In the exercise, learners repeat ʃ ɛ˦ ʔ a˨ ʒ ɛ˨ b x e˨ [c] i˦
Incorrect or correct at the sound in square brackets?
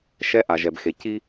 correct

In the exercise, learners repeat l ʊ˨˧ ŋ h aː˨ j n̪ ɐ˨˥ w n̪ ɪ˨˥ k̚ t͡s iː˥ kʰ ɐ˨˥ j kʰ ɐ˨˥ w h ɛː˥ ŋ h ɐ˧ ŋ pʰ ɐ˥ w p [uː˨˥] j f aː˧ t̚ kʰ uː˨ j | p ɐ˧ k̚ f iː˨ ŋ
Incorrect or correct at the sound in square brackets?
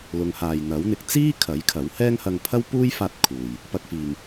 incorrect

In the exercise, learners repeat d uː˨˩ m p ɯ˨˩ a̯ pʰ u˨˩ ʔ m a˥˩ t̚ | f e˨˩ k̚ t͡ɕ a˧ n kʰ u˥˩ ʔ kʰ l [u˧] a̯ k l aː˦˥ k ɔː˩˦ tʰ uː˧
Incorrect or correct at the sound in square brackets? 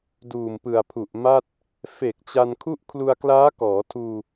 correct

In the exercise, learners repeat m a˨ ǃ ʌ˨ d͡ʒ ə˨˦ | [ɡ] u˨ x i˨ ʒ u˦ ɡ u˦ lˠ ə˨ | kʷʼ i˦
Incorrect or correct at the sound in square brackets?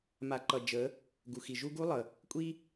correct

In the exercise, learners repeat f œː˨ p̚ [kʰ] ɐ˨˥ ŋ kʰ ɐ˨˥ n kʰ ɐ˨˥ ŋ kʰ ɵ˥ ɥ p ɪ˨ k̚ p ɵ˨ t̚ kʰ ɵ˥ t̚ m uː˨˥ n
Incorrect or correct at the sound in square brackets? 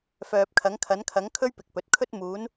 correct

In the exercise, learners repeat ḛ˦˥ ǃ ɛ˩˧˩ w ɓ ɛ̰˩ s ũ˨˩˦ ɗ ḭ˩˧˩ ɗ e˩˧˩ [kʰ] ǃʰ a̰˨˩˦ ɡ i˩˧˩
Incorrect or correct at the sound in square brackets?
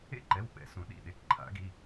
incorrect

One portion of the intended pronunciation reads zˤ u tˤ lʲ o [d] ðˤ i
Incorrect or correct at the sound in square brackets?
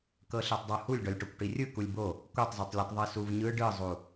incorrect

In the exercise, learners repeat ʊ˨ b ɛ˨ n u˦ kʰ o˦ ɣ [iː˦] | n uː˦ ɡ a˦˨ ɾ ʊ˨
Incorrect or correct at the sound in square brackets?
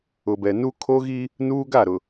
incorrect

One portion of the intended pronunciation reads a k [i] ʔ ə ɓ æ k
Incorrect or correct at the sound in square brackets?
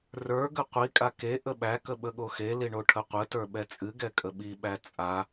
incorrect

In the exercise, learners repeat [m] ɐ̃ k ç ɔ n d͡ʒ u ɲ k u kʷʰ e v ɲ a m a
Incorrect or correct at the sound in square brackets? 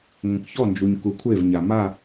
incorrect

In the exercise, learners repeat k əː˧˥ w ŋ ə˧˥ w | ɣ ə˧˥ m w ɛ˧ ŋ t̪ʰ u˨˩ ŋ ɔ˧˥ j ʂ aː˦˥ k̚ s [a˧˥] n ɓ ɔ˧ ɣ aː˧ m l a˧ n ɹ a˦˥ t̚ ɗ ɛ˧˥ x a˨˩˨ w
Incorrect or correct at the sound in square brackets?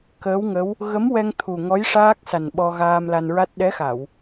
incorrect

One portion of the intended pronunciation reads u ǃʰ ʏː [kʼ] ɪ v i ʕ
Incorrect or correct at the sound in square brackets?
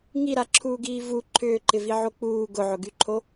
incorrect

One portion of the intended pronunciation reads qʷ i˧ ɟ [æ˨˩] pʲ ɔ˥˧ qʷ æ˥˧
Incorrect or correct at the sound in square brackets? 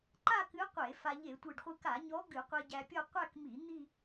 incorrect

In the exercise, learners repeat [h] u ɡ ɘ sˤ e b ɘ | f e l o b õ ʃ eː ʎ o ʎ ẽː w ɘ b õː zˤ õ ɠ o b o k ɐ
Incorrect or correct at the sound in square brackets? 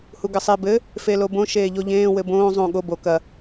correct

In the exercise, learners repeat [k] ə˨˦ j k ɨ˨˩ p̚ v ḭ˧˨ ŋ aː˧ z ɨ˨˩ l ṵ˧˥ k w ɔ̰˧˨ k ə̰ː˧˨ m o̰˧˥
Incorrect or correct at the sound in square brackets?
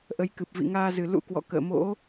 incorrect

